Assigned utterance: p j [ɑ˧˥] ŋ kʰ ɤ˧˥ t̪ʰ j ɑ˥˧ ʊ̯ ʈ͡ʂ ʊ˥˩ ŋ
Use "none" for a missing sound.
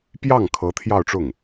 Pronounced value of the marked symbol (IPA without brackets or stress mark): ɑ˥˩